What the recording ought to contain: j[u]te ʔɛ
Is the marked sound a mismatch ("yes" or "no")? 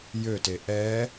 yes